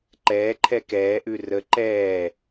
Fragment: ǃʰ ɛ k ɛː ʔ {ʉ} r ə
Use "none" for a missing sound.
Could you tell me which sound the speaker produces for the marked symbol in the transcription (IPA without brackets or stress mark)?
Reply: ʉ